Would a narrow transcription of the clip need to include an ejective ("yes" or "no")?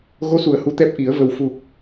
no